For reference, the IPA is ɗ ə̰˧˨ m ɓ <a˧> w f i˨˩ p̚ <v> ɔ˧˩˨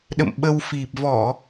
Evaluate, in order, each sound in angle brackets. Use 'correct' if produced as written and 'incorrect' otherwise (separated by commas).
incorrect, correct